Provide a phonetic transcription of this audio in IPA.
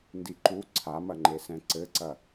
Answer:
n d i ǃ u ǀʰ a m ɐ ŋ͡ǃ e s ɛ̃ ǀ ɘ ǀ ɐ

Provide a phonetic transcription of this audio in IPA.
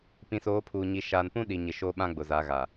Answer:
p ĩ˨ s oː˨˦ pʰ uː˨ ɲ i˨ ʃ aː˨ n p ũ˦ ɗ i˨ ɲ ɪ˨ ʃ oː˦ ɓ ã˦ ɡ͡b ʊ˨ z a˨˦ ɣ a˨

